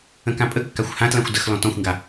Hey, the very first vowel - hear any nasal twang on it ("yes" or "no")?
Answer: yes